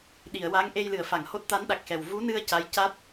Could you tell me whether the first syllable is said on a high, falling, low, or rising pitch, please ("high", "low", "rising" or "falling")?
low